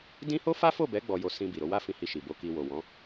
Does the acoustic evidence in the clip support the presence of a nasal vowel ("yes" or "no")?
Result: yes